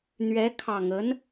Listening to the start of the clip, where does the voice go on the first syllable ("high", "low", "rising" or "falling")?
rising